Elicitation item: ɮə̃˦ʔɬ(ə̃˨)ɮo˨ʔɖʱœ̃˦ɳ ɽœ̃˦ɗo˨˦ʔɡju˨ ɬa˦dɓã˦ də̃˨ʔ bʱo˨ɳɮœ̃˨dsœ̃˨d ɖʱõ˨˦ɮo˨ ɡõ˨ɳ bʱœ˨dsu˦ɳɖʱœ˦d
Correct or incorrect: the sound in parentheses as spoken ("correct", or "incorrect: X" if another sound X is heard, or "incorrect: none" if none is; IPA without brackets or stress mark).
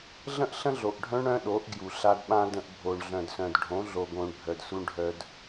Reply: incorrect: ə̃˦